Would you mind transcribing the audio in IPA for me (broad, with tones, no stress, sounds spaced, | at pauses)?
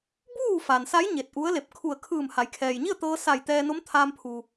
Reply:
b uː˥˨ f a˩ n s a˧˥ j ɲ e˧˩ t̚ ʔ u˧˥ ə̯ l e˧˩ p̚ kʰ u˧˩ ə̯ kʰ ɯː˧˩ m h a˩˧ j kʰ ɛː˩ j ɲ i˥˨ ə̯ t̪ ɤː˧ s a˧˩ j t̪ ɛː˧ n o˧˥ m t̪ʰ aː˧ m pʰ uː˩